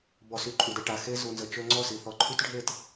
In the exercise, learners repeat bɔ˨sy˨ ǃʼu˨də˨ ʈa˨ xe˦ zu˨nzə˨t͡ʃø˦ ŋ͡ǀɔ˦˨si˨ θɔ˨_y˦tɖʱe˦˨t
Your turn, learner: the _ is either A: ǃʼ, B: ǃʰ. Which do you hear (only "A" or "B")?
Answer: B